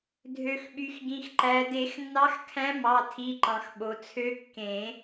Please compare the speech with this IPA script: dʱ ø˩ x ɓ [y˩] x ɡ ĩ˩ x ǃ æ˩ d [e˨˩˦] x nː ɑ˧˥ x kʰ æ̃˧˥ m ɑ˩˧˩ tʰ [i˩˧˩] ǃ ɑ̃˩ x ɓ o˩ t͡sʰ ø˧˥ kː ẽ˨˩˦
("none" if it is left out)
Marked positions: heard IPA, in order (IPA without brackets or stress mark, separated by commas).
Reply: y˩, e˨˩˦, i˩˧˩